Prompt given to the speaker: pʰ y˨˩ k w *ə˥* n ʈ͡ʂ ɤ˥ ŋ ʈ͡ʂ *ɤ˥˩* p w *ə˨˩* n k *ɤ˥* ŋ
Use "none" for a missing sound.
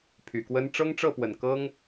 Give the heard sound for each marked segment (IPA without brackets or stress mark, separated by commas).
ə˥, ɤ˥˩, ə˨˩, ɤ˥